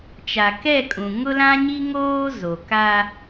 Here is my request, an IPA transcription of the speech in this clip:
t͡ʃ a˨ k ɛ˦˨ kʼ ũ˨ ŋ ʊ˦ l ã˦ ɲ i˦ ŋ oː˦ z o˨ k a˦

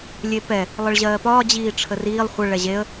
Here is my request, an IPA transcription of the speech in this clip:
lʲ e p ɛ | lˠ ə ɭ ʑ ɜː p ɒː d͡ʑ iː ʈ͡ʂʰ ə r iː lˠ χʷ ə ɭ ɛ ʑ e ə̯

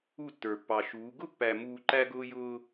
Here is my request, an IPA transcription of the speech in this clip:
u˦˨ tː ə˞˨ pː ɑ˨ ʃ uː˨˦ ɡ ʊ˦ pː æ˨ m uː˨ ǃ æ˦ ɡ ʊː˦ j ʊː˦

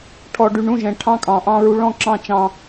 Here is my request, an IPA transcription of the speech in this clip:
ʈʰ ɔ˨ ɖ y˨ ɳ ũ˦˨ ʒ ɛ̃˨ ʈʰ ɑ̃˦ kʼ ɑ̃˨ ʔ ɑ̃˦ ɹ u˦ ɭ ɔ̃˦ ǁ ɑ̃˦˨ t͡ʃ ɑ̃˦

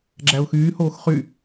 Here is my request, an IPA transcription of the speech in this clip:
ɡ͡ǁ æ ʊ̯ x yː h oː x χ y

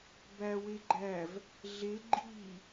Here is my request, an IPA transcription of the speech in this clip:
b æ w e ɡ͡ǃ æ v | ɮ e ɡ͡ǃ i

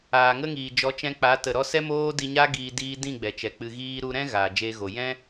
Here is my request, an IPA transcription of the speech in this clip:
aː˨ ŋ ə˦ ŋ iː˨ d͡ʒ ɔ˨˦ t͡ʃ ɛ̃˧ k͡p a˨˦ t ə˨ ɾ ɔ˧ s ɛ˦ m oː˦ d i˧ ɲ a˦ ɡ iː˧ d iː˧ d ĩ˦˨ ɡ͡b ɛ˨ t͡ʃ ɛ˨ k͡p ɨ˨ ɣ iː˧ ɾ u˧ ɾ ɛ̃˦ ɣ aː˨ d͡ʒ eː˧ ɣ o˨ j ɛ̃˦

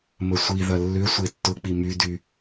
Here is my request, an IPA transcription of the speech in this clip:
m ə sʷ i ð ɐ lː ʏ sʷ e tː ʊ k͡p i m y d y

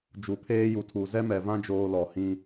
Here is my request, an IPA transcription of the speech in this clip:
d͡ʒ u˨ pʰ eː˦ j u˨ tʰ u˨ z ɛ˦ m ɛ˨ v ã˦ d͡ʒ oː˦ l ɔ˨ h ĩ˦

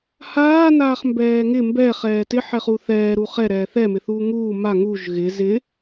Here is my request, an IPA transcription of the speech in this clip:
h aː n aː χ m b ɛː ŋ ɪ m b ɛ χ ɛː t ɪ ħ ɛ χ u θ ɛː ɾ u χ ɛ ɾ ɛː θ ɛ m ɪ θ uː ŋ uː m a ŋ u ʒ ɣ ɪ z ɪ

